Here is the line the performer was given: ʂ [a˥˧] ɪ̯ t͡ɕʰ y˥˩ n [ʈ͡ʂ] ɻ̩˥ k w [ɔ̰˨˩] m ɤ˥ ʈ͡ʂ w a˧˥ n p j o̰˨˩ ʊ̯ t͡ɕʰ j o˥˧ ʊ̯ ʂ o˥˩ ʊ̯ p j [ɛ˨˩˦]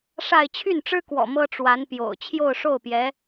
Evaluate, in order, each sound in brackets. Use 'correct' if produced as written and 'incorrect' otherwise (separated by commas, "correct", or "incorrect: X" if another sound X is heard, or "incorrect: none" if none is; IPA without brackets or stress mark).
correct, correct, correct, incorrect: ɛ˧˥